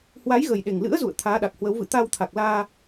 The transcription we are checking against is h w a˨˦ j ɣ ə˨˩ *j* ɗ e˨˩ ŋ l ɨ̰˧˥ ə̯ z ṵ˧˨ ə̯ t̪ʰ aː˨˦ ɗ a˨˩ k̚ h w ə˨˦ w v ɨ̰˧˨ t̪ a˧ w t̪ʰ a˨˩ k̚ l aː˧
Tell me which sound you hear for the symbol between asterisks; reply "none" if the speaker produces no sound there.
j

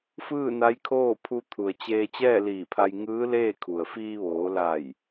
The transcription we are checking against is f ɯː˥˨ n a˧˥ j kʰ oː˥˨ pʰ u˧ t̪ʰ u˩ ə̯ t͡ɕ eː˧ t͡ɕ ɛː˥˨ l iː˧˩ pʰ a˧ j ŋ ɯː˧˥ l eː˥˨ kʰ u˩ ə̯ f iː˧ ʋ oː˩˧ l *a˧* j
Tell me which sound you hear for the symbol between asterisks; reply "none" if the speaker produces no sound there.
a˧˩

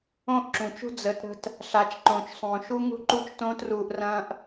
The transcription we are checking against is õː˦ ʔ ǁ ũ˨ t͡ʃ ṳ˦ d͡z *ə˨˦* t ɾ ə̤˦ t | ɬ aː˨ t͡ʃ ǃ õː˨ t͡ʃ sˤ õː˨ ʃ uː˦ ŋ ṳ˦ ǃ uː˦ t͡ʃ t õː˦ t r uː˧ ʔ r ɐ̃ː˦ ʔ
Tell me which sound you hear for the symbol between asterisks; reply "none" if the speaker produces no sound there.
ə˨˦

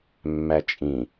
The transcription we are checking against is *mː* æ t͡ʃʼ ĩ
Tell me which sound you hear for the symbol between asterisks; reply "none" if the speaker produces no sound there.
mː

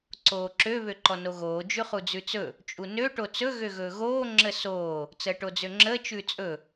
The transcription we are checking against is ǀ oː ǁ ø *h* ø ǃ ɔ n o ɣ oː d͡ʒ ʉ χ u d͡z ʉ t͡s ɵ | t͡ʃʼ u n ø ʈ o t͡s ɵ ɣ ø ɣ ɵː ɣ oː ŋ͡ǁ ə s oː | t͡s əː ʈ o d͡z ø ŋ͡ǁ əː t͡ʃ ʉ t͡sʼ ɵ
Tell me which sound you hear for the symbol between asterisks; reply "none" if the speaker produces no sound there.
β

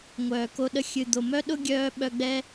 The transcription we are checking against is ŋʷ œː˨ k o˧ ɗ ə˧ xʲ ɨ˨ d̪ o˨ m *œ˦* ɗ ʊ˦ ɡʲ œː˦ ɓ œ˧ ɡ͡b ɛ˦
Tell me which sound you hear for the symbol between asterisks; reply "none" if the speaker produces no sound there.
œ˦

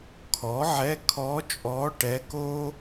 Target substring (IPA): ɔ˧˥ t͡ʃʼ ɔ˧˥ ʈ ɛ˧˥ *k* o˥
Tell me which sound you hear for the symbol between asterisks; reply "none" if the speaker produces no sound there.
k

